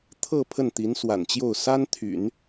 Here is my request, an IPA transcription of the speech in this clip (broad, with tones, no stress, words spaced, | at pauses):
t̪ʰɤ˥˧ pʰə˥˩nt̪i˧˥nswa̰˨˩nt͡ɕjo˥˩ʊ̯ sa˥nt̪ʰy̰˨˩˦n